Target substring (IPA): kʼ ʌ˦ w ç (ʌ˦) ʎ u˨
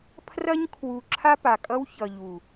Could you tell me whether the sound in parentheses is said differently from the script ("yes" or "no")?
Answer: yes